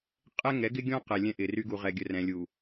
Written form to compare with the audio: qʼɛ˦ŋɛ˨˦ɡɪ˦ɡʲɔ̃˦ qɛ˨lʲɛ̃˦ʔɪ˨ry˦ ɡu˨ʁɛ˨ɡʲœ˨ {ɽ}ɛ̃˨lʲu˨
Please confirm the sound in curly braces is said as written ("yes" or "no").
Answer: no